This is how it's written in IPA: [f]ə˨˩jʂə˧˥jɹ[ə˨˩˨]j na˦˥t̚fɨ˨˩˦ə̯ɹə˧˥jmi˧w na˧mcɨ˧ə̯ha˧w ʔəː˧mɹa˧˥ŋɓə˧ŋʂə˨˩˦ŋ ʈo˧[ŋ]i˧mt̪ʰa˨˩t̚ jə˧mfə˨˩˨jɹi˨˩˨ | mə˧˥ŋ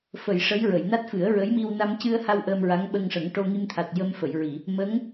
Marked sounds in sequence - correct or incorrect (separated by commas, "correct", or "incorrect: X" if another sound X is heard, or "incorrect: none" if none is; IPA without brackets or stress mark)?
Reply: correct, correct, correct